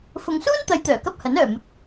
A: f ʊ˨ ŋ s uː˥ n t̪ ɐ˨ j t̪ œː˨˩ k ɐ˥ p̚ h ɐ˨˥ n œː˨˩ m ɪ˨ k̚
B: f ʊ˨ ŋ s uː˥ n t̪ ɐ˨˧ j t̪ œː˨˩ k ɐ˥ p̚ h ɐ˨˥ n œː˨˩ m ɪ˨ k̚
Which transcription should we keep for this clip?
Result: B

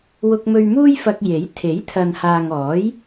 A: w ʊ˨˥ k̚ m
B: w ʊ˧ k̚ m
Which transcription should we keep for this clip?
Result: B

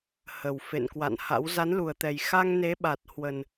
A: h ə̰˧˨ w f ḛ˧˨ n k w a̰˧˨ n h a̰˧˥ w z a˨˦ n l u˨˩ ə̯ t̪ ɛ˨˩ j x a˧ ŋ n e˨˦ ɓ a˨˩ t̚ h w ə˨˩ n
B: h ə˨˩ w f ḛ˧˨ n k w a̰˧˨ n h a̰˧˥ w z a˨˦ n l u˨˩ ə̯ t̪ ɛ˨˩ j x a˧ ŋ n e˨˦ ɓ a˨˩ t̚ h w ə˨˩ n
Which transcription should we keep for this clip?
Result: B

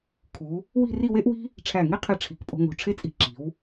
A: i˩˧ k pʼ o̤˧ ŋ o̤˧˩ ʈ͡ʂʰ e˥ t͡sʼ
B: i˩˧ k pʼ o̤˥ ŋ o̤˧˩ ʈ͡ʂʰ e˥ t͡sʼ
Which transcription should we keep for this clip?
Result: A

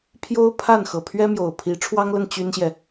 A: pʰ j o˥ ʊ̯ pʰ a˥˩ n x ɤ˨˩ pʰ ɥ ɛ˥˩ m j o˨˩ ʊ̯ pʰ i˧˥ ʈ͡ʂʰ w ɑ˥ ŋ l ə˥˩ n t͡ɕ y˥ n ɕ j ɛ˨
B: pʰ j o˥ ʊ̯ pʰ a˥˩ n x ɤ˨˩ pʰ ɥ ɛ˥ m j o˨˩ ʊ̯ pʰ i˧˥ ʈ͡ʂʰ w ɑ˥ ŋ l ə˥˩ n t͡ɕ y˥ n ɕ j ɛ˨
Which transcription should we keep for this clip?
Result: B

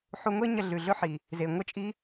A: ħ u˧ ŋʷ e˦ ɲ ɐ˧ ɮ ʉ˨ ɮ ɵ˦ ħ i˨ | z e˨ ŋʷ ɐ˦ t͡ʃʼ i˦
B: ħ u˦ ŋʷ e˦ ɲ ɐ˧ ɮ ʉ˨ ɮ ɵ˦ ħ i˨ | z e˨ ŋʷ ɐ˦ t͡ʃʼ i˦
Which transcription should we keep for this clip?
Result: A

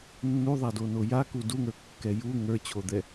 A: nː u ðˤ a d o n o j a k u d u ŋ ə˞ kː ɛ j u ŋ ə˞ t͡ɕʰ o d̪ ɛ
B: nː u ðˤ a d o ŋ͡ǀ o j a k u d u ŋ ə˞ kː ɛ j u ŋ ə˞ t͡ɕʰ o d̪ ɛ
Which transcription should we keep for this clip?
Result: A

